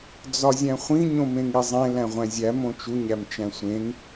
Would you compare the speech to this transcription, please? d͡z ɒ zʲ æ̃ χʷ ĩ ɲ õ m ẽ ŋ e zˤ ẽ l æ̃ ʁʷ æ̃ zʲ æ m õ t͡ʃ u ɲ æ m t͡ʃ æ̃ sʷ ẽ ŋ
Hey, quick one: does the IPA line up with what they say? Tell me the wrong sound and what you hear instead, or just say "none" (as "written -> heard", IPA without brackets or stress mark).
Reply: none